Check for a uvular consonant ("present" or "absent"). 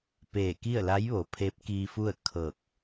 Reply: absent